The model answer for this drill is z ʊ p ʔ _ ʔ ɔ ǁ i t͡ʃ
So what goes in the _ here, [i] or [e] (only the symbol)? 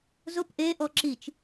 e